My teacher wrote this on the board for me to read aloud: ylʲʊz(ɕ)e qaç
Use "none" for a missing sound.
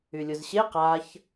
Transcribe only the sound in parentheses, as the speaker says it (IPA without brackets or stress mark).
ɕ